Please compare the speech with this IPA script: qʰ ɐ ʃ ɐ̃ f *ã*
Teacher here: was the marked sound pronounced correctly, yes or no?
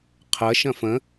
no